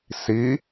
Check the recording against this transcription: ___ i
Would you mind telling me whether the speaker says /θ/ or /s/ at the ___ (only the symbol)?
s